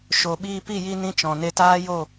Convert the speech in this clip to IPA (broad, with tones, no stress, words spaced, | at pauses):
ʃo˨ ɓiː˧pi˦˨ ji˧ nĩ˦t͡ʃɔ̃˨ ne˧taː˦jo˦˨